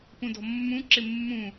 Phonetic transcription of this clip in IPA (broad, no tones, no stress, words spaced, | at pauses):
pũdɔ̤mːũ ǁɪmːũ